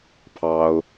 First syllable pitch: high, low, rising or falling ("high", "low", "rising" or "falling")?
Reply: high